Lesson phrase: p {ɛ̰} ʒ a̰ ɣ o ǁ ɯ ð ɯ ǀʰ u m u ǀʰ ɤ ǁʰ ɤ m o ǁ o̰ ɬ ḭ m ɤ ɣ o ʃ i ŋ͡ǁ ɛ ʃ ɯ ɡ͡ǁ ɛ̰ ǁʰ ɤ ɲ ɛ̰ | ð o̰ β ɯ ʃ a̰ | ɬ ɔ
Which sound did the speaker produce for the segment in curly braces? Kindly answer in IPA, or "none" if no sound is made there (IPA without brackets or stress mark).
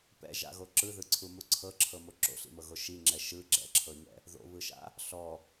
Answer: ɛ̰